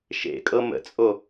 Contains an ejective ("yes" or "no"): yes